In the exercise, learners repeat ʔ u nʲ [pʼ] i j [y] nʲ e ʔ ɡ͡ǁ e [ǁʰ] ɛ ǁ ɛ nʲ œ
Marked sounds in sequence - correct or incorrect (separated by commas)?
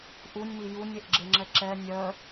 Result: incorrect, incorrect, incorrect